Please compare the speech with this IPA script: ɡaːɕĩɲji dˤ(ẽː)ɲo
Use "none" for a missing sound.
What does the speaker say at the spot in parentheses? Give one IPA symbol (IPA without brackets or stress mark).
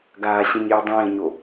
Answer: ẽː